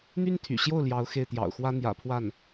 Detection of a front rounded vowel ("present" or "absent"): present